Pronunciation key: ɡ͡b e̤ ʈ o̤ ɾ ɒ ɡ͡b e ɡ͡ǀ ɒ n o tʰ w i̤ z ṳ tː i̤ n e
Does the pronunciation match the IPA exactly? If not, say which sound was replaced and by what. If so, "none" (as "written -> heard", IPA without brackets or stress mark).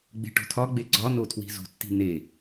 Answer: ɾ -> tʰ